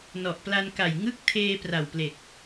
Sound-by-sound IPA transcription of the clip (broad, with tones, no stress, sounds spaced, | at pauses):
n ɔ˨˩ ʔ p l a˧ n k a˨˩ j ŋ ɯ˦˥ k̚ tʰ eː˧ p r a˨˩ w p l e˨˩ k̚